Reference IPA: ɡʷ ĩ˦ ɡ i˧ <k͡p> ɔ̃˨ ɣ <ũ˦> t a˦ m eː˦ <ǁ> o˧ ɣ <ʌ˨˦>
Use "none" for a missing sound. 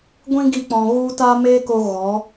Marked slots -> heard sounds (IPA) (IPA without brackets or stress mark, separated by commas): k͡p, u˦, k, ɔ˨˦